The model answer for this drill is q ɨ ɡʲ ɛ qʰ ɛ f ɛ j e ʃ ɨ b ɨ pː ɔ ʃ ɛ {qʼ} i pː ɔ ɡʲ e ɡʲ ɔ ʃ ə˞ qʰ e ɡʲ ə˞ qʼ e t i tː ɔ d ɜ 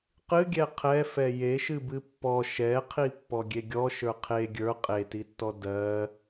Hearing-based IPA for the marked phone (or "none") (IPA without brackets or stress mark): qʰ